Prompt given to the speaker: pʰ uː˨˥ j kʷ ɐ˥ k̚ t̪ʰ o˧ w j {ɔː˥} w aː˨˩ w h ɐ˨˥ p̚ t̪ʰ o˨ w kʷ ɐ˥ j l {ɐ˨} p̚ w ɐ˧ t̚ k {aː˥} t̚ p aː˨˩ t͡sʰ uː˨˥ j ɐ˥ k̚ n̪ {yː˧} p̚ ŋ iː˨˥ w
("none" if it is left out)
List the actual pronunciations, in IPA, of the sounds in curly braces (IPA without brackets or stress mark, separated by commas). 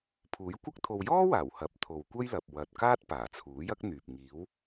ɔː˥, ɐ˨, aː˥, yː˨